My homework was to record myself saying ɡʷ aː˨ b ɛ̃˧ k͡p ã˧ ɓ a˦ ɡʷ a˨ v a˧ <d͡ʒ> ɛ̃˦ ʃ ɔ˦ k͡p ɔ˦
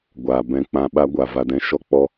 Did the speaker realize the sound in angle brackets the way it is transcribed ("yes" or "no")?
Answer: no